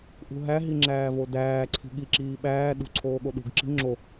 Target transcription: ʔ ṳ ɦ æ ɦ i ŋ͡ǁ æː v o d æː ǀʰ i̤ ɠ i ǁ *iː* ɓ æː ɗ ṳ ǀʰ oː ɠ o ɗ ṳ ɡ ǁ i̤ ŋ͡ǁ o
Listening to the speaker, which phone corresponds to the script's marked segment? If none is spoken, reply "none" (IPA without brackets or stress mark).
iː